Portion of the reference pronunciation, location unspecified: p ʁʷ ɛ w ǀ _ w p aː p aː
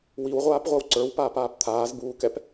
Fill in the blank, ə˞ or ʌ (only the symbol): ə˞